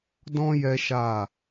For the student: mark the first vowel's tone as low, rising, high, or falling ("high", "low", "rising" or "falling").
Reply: high